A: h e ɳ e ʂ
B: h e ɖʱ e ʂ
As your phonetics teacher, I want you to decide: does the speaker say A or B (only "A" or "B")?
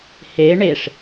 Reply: A